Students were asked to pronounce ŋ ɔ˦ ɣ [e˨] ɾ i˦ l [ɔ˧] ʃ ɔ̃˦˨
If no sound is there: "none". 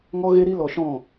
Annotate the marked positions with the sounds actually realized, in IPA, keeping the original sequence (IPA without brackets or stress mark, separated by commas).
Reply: e˦, ɔ˧